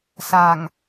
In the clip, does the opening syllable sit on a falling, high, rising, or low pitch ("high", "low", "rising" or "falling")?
low